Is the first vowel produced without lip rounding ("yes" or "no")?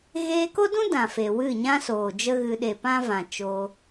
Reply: yes